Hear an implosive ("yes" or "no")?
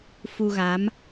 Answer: no